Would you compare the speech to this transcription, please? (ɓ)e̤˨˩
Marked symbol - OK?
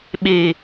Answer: yes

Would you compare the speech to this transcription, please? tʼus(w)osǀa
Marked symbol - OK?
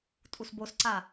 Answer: no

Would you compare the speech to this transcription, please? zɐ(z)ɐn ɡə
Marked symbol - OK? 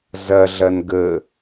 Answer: no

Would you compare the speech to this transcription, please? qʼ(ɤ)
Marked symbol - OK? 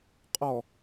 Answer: no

